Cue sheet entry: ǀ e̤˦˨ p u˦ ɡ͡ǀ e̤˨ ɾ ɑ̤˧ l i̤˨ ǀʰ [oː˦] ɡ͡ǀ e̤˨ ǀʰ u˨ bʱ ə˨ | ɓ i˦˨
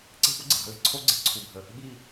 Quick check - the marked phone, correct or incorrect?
incorrect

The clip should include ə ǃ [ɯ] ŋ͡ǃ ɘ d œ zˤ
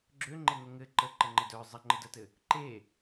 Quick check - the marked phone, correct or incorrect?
incorrect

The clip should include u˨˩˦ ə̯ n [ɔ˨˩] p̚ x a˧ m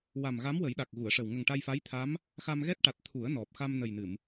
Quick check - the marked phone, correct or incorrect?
correct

